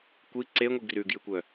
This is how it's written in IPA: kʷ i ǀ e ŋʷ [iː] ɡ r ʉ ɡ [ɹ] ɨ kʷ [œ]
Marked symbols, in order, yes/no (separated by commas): no, no, yes